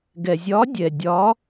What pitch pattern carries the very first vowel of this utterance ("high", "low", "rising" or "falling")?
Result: low